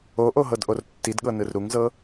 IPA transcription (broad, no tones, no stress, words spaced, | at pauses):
oʔo ɦɤdʔortːidɠɤ nɯrɾuŋzɤ